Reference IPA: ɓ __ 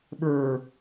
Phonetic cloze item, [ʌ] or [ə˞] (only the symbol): ə˞